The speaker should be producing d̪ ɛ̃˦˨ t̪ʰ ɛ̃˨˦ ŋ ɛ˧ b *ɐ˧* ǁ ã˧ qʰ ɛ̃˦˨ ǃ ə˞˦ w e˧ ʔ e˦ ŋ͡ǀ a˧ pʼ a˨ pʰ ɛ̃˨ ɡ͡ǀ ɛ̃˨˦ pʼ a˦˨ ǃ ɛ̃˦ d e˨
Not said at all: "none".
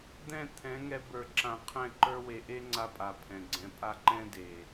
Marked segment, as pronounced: ə˞˧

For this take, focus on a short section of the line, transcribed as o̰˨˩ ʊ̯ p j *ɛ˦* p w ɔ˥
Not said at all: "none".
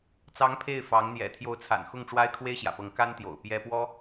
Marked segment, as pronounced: ɛ˥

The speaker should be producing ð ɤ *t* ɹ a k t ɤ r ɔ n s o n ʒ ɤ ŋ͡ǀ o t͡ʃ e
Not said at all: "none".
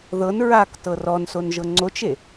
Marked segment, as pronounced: n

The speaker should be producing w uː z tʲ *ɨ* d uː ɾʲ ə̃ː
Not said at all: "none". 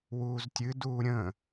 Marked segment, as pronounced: ɨ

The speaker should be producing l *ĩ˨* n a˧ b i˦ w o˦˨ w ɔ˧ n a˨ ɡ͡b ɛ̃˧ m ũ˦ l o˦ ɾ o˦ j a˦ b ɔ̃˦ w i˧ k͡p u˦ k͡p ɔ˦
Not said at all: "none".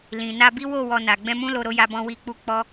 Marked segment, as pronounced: ĩ˨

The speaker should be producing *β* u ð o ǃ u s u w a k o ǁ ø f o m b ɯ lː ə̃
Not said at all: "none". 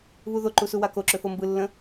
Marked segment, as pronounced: β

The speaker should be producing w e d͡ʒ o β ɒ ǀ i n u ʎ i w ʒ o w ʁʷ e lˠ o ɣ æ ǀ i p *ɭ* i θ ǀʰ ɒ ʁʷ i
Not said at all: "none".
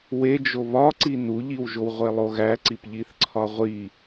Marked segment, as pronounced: ʎ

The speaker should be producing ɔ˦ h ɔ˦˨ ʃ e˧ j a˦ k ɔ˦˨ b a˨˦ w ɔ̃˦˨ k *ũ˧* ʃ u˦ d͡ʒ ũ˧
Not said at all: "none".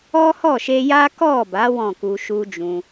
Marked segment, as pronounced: u˧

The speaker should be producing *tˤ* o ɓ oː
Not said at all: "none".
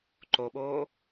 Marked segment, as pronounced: ǃ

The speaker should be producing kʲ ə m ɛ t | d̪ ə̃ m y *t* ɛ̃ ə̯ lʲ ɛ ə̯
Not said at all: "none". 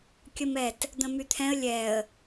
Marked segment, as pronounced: t̪ʰ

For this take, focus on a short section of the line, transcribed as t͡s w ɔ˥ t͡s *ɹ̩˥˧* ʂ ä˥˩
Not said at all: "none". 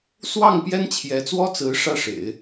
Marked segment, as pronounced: ɹ̩˧˥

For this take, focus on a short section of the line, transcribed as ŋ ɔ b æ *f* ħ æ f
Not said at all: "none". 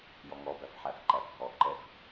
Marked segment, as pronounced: f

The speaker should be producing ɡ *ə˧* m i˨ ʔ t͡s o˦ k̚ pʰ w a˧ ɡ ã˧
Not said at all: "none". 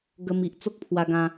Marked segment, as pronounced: ə˧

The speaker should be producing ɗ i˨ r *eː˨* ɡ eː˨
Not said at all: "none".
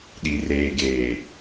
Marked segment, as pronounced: eː˨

